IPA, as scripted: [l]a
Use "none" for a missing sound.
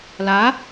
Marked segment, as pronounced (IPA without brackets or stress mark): l